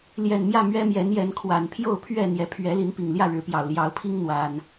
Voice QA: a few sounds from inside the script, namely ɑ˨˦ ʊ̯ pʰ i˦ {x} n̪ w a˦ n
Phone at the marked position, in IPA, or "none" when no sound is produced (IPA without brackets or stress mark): ŋ